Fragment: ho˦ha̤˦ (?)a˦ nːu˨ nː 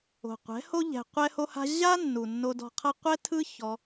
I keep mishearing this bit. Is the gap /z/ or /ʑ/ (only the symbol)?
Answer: ʑ